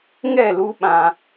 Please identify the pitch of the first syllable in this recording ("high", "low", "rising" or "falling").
falling